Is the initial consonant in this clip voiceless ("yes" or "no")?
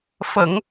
yes